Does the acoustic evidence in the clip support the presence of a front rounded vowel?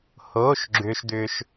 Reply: yes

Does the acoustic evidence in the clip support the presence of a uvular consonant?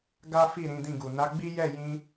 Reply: no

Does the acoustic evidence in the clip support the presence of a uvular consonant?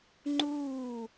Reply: no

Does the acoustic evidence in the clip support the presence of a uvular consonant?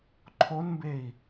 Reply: no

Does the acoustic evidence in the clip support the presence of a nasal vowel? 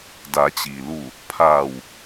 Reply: no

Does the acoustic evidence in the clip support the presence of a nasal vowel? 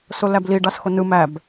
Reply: no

